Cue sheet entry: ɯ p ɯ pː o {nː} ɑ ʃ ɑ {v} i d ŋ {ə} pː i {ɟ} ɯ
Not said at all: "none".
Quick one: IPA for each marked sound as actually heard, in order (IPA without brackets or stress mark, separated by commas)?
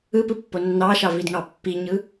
nː, v, ɑ, ɲ